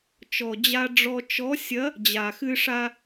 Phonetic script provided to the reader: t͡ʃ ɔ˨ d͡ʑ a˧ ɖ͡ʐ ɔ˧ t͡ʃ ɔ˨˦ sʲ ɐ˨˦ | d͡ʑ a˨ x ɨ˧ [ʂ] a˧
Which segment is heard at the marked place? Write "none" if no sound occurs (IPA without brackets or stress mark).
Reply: ʂ